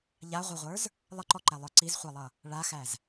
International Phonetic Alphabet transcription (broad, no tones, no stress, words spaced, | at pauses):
ʎaʁʷʌʁʷə˞z | lˠəǃɔǃælˠə˞ ǀizχʷalˠʌ | ɭaxæz